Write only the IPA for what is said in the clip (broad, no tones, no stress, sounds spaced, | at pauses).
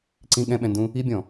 ǀ ĩ ɠ ɛ̃ ɓ ɛ̃ n d ũ | i bʲ ɔ̃